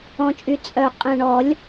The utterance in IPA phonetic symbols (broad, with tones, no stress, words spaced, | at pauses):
ɔ̃˨˩t͡ʃʼy˨˩ t͡sʼœ˨˩ qʼɛ̃˨˩ɳɔ˨˩˦lʲ